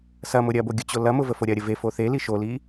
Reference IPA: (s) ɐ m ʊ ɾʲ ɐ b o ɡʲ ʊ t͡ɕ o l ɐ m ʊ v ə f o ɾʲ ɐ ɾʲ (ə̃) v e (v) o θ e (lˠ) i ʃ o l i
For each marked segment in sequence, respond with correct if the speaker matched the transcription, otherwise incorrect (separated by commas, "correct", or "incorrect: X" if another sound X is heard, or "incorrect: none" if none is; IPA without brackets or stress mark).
correct, incorrect: ə, incorrect: f, incorrect: l